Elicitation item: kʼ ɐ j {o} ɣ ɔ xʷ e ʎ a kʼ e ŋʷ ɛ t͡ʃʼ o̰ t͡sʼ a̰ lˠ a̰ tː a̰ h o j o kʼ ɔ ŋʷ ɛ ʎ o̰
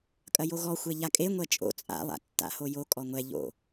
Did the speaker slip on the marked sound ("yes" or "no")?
no